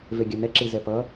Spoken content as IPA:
v e ɡʲ a n ɛ ǁ i z ɛ p ʌ

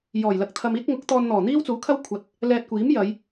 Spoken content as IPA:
j ɔː˨˩ j l ɐ˨ k̚ t̪ʰ ɐ˧ m iː˥ t̚ ŋ ʊ˨˥ k̚ t̪ ɔː˧ n n̪ ɔː˨˩ n̪ iː˥ w t͡s uː˨˥ kʰ ɐ˥ w kʷʰ ɐ˨˥ t̚ | l ɛː˧ t̚ kʷ iː˨˥ m j ɐ˨˧ j

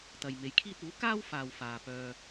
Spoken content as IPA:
t̪ ɐ˨ j m e˨˥ j kʰ iː˥ t̚ uː˨˥ k aː˥ w f aː˨ w f aː˨ p œː˧

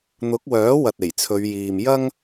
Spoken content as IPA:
n̪ ʊ˨˥ k̚ w œː˨˥ w ɐ˨ t̚ e˨˩ j t͡sʰ ɵ˨˧ ɥ j iː˨ m j ɐ˥ ŋ

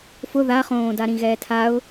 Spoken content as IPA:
f ʊ ð a χ õː d a ɾ ĩ ɣ ɛː tʰ a ʊ̯

